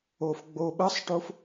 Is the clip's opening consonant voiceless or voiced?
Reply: voiceless